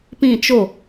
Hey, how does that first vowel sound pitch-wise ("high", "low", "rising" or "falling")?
falling